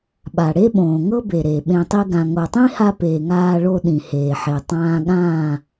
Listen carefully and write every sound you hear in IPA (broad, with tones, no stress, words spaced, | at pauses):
ɓa˨ ɽe˦ɓõː˨ŋɤ˦be˨ ɾeː˨ɓẽ˧tˤi˦ɡã˧ ŋo˨tˤĩ˦ha˧ peː˨ŋaː˧ɭo˧ ɗĩ˨heː˨ħe˨ tˤãː˧ɠãː˦˨